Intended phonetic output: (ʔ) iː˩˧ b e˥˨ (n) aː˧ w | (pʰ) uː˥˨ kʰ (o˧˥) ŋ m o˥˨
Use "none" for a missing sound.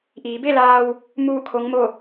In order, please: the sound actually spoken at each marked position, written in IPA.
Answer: ʔ, l, m, o˧˥

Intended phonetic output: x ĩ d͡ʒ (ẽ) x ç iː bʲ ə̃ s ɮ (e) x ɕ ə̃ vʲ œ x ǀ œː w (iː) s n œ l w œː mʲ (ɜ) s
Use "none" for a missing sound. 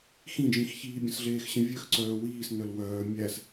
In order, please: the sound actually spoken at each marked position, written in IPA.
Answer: ĩ, eː, iː, æ

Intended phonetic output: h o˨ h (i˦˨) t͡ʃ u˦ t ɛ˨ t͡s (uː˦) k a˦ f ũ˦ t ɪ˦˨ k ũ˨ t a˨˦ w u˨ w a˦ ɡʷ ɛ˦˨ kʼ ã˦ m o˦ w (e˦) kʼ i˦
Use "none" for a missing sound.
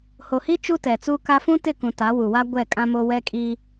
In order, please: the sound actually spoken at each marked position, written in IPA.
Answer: i˦, u˦, ɛ˦

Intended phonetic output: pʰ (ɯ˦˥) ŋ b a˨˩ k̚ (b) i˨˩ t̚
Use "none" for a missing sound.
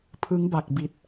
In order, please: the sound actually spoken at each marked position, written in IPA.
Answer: ɯ˦˥, b

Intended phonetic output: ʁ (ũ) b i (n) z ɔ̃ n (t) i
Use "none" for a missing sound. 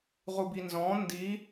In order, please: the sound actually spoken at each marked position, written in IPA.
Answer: u, n, d

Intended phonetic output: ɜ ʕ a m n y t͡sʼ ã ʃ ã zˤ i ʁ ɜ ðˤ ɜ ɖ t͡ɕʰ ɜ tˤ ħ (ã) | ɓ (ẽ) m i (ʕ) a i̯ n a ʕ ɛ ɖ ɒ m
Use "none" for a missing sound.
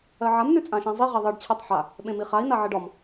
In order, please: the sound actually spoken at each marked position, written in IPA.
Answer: a, ẽ, χ

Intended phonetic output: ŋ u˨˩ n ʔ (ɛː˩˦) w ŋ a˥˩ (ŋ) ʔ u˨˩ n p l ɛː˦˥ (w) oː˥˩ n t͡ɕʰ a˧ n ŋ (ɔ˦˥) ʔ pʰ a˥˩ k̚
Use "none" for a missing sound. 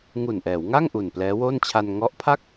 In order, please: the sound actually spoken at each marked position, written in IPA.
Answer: ɛː˩˦, ŋ, w, ɔ˦˥

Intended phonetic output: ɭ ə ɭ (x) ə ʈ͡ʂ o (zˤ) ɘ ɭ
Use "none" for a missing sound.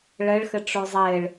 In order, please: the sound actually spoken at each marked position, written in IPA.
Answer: x, zˤ

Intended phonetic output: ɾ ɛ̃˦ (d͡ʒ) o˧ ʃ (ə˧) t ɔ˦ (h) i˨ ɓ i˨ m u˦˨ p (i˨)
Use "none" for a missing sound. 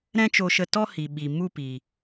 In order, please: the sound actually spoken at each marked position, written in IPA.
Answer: t͡ʃ, ə˧, h, i˨

